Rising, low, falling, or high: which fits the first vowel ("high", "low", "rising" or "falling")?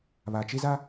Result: low